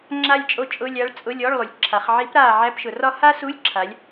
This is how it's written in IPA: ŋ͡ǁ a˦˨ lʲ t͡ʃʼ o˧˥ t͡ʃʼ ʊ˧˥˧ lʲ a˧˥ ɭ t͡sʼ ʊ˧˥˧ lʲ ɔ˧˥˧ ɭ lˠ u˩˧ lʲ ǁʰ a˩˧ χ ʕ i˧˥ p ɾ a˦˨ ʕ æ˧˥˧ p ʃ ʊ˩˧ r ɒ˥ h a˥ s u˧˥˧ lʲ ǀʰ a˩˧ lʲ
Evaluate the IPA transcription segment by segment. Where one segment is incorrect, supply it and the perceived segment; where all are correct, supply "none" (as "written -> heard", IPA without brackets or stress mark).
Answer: ǀʰ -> ǁʰ